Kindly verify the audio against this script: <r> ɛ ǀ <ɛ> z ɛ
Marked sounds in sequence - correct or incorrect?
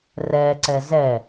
correct, correct

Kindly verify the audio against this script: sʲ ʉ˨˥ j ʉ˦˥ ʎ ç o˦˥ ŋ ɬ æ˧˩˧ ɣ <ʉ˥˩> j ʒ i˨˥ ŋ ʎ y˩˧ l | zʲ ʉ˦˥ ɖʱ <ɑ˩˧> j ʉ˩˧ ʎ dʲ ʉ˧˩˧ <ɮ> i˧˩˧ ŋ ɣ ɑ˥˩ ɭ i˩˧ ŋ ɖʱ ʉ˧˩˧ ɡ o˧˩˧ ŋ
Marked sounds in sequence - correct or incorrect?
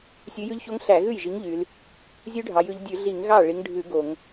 correct, correct, correct

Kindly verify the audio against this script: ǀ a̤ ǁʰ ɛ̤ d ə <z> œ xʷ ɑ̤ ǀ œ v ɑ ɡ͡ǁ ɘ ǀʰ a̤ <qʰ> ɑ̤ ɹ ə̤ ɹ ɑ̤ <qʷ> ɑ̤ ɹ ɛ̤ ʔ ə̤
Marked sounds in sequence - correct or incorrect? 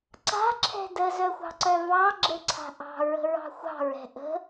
correct, incorrect: ʔ, incorrect: xʷ

